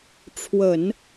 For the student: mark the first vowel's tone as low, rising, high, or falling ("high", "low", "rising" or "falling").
low